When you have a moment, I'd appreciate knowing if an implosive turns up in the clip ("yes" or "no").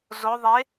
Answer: no